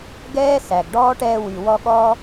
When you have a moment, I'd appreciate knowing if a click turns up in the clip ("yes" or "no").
no